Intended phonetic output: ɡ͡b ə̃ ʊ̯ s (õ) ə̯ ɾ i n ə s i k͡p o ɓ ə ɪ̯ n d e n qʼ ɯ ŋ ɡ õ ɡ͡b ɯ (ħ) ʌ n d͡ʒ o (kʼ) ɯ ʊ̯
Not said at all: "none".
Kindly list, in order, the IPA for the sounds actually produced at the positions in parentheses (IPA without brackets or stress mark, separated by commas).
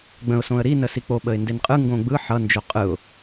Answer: õ, ħ, qʼ